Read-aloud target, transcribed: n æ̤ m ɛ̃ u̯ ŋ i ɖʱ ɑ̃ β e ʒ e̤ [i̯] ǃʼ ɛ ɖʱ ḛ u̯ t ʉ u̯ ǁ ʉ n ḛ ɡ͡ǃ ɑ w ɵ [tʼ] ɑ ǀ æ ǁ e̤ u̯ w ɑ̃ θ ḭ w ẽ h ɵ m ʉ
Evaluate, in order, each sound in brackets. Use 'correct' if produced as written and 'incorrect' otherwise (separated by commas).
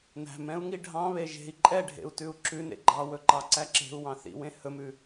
correct, incorrect